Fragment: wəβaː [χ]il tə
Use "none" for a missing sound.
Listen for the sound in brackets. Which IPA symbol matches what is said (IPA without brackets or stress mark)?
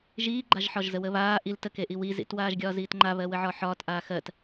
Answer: ʔ